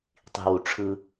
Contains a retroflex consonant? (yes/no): yes